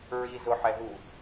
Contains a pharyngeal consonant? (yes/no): yes